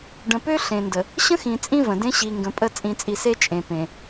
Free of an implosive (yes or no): yes